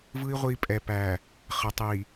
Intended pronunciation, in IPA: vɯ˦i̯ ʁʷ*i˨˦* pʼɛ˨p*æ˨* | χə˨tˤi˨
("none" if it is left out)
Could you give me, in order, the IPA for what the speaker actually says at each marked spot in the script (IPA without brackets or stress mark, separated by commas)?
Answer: i˦, æ˨